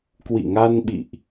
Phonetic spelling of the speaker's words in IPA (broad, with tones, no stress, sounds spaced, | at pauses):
k w ḭ˧˨ ŋ a˧ n ɓ ḭ˧˨ ʔ